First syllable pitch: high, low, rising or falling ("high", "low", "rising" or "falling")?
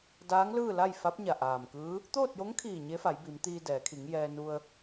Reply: rising